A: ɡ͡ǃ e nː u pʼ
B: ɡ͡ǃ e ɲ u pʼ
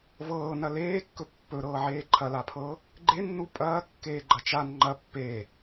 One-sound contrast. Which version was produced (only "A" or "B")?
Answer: A